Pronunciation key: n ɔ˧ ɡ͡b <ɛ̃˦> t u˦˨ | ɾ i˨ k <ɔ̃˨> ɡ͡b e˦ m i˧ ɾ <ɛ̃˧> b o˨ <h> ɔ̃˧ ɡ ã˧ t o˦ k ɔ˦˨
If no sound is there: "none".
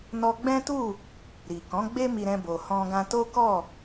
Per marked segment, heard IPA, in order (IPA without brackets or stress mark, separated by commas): ɛ̃˦, ɔ̃˨˦, ɛ̃˧, h